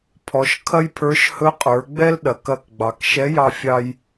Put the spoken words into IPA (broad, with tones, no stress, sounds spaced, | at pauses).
pʰ ɔ˩˧ ʃ kʰ ɐ˥ j pʰ ə˞˧˥ ʃ h ɵ˧˥ qʼ ə˞˩˧ ɡ͡b ɛ˥ l ɗ ɐ˩˧ k ɐ˧ k ɡ͡b ɑ˩ k ʃ ɛ˧˥ j ɑ˧ fʲ ɑ˥ j